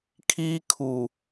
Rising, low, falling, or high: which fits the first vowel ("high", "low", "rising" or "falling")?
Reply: high